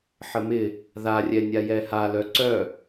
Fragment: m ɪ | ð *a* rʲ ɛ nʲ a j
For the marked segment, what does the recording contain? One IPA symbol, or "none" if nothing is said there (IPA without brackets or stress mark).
a